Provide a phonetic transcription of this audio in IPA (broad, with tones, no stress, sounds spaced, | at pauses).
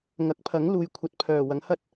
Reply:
ŋ ɐ˨˥ k̚ pʰ ɐ˨˥ ŋ l uː˨ j kʷʰ ɐ˨˥ t̚ pʰ œː˨˩ w ɐ˨˥ ŋ h ɐ˥ t̚